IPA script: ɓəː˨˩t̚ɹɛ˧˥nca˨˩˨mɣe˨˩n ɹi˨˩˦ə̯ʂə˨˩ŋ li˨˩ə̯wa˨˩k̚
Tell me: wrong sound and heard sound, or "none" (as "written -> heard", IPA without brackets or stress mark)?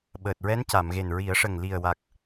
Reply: none